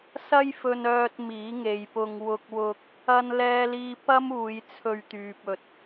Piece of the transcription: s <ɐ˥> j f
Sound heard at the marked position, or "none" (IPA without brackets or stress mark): ɐ˥